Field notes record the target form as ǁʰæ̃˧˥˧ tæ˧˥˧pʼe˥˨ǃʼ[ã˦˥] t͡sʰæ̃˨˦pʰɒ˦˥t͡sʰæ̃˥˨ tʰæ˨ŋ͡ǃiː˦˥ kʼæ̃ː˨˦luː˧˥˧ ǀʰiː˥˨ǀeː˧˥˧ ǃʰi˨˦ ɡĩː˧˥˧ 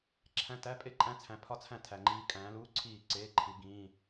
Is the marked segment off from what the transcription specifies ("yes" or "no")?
yes